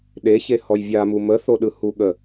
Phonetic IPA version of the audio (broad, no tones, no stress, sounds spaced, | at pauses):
ɗ e ç e h ɔ j vʲ a m u m ə θ o ɗ ɯ h u ɠ ə